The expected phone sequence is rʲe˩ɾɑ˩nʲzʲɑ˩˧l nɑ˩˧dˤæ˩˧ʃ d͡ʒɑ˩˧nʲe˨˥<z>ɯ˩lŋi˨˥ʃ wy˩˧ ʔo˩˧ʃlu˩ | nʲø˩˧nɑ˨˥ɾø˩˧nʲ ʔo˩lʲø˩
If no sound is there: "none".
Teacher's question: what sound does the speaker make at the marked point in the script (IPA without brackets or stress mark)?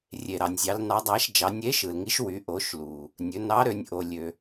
ʃ